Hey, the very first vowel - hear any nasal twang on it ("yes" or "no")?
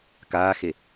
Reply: no